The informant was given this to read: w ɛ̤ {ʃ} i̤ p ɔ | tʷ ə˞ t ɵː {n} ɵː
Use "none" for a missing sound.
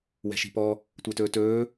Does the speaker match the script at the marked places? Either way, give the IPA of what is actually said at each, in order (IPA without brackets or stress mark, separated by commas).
ʃ, t